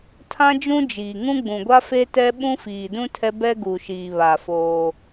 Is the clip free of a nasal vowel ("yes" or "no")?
no